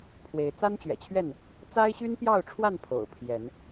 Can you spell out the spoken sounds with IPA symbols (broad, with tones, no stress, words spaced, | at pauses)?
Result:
pʰwe˨˦ɪ̯ t͡sa˦nt͡ɕɥɛ̰˨˩t͡ɕʰɥɛ˥˨n | t͡sa˦ɪ̯ɕy˦npjɑ˥˨ʊ̯ʈ͡ʂʰwa˥˨n pʰo̰˨˩ʊ̯pʰjɛ˨˦n